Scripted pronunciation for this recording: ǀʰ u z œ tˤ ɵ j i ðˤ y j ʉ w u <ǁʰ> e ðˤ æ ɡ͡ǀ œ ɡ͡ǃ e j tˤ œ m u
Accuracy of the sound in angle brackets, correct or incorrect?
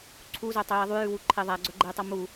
incorrect